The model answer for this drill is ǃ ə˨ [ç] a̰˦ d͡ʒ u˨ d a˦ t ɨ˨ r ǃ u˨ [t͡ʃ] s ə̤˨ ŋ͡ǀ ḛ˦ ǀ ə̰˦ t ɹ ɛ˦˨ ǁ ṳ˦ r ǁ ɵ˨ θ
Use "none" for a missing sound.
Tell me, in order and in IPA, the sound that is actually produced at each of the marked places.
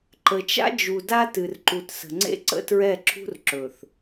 t͡ʃ, t

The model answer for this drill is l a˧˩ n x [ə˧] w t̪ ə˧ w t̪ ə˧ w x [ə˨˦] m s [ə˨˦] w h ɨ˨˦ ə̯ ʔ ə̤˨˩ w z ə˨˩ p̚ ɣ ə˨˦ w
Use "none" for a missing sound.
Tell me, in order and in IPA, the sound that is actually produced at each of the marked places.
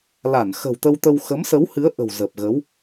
ə̤˨˩, ə˨˦, ə˨˦

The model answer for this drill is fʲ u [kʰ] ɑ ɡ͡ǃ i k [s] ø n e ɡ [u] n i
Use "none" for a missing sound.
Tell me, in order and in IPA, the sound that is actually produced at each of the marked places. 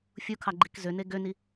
kʰ, z, ø

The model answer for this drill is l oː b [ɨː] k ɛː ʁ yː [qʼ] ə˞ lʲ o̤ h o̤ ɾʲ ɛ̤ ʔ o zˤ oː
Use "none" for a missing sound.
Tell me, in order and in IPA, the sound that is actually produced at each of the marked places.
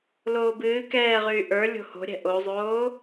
ɨː, ʔ

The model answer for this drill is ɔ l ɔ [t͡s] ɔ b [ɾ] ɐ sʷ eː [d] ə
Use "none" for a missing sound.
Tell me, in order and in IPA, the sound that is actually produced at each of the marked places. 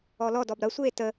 d, ɾ, t

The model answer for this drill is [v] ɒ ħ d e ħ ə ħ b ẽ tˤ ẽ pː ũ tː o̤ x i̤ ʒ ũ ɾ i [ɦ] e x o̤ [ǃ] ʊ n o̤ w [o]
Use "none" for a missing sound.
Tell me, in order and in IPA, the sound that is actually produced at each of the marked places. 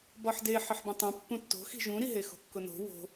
b, ɦ, kː, o̤

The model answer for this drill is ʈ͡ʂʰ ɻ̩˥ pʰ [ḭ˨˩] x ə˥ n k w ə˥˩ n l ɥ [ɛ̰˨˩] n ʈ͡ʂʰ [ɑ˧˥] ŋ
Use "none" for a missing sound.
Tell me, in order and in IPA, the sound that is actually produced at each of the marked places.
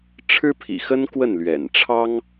ḭ˨˩, ɛ̰˨˩, ɑ˥

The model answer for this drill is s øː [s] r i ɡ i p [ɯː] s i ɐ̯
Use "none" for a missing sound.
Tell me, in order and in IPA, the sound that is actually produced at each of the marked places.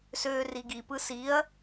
none, ɯ

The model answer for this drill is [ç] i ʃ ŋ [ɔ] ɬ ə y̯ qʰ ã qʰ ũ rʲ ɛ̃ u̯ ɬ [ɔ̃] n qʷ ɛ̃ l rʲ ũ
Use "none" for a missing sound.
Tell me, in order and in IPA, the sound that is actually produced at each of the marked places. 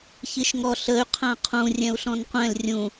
ç, ɔ, ɔ̃

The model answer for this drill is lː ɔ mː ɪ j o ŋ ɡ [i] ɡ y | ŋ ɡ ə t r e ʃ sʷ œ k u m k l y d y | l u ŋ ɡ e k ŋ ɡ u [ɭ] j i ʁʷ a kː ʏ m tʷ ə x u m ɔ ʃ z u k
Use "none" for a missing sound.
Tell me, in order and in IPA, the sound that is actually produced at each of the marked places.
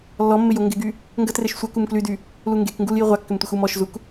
ɪ, l

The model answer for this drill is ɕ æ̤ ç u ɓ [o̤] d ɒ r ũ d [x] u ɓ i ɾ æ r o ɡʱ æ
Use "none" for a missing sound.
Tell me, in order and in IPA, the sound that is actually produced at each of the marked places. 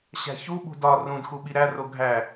ṳ, x

